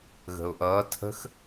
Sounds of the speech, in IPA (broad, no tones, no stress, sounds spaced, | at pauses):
ɣ ə̤ ʊ̯ ʔ ʌː tʰ ə̤ x